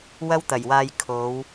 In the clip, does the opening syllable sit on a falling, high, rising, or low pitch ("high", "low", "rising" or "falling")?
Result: high